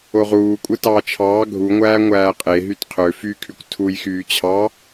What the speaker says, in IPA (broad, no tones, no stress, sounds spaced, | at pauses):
o ʁ uː kʷʼ ɯ t ɑː t͡ʃʰ ɑː ɡʱ u ŋʷ æː ŋʷ æː qʼ e ɦ y t qʰ ø f y kʰ y kʷ tʰ u j x yː t͡ɕʰ ɑ